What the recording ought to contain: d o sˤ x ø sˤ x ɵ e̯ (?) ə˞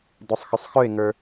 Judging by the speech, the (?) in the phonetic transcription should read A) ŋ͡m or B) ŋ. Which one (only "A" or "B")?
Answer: B